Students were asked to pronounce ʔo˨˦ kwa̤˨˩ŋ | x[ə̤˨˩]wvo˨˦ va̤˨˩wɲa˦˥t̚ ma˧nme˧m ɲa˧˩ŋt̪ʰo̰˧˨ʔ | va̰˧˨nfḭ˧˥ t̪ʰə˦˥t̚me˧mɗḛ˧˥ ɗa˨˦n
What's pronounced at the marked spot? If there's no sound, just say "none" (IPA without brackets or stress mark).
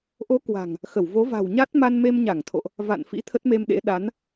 ə˧˩